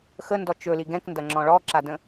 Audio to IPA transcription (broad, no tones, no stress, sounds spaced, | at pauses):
x ə n d ɔ t͡ʃ ɵ l i ɡ ɛ̃ k n d ɐ ŋ͡ǁ ɔ̃ ɭ ɔ ǁ a d ə̃